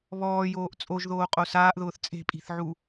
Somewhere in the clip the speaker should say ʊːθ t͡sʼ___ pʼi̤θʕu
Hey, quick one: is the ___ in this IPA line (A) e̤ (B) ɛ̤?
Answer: A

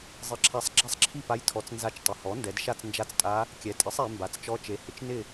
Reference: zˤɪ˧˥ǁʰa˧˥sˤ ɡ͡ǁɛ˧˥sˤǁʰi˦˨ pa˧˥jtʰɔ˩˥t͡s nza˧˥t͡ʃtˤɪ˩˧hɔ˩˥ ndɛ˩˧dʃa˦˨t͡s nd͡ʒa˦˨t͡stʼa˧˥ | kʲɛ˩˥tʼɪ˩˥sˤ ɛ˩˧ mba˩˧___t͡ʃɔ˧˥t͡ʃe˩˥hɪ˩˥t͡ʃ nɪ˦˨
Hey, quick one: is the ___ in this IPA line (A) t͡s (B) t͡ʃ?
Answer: A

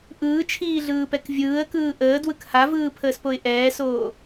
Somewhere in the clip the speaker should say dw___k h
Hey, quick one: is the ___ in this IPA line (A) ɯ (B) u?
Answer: A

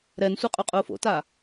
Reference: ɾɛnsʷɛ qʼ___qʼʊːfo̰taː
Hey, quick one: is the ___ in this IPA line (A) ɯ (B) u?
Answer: B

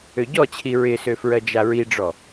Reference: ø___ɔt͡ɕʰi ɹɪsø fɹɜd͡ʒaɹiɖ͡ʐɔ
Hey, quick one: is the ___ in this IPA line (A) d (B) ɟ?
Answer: B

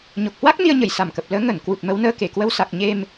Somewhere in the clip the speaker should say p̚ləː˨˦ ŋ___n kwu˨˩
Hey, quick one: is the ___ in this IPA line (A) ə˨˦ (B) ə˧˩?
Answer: B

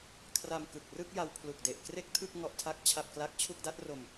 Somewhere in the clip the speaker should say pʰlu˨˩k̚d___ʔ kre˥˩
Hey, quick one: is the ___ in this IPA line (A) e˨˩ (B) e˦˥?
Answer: A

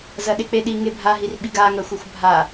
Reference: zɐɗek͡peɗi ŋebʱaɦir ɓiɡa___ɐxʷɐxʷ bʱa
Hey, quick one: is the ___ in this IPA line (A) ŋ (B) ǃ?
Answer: A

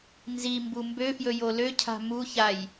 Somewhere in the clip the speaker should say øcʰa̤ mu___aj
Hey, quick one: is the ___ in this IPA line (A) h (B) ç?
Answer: B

